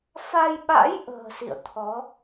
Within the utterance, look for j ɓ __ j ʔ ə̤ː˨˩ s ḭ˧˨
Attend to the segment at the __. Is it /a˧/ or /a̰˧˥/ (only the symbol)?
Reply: a̰˧˥